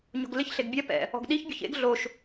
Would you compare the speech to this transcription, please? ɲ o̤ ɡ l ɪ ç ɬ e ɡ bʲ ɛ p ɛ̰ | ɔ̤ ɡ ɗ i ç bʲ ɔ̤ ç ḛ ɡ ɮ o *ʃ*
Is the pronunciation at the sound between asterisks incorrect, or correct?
correct